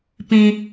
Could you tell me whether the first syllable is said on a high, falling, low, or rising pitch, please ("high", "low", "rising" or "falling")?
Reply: low